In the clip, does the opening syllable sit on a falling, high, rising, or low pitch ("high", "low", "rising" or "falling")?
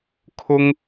high